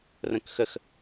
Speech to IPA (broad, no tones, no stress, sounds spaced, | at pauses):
r ə̃ k x ə x